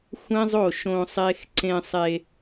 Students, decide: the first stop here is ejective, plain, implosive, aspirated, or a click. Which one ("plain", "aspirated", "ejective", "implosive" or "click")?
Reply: click